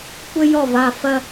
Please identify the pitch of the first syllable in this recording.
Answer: high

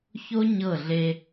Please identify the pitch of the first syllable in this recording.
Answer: high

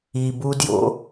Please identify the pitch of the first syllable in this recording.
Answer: low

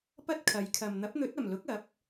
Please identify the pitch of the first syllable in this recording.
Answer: high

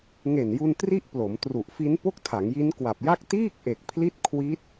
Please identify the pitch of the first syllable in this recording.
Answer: low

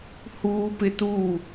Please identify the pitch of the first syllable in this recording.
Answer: high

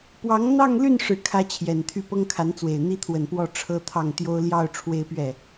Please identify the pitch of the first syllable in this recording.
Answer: rising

